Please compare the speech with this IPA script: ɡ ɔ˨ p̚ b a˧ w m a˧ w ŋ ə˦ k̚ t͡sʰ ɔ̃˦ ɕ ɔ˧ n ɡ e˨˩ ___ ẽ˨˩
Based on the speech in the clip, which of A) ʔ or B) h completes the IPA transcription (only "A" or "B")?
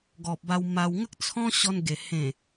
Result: B